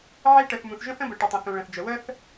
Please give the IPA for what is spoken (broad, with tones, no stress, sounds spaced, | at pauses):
ʕ e˥ ʈ ə˩ θ m ũ˩ θ ʒ ə̃˥ θ ə̃˥ b ə˩ ʈ ə˩ tˤ ə̃˩ θ ũ˩ ɭ ə̃˩ θ d͡ʒ ə˩ w ə˥ θ